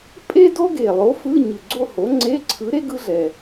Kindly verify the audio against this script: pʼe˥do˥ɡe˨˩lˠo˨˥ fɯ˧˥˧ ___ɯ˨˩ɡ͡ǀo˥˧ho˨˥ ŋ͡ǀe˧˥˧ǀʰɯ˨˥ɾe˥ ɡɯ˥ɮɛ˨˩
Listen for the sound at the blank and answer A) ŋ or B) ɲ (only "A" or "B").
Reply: B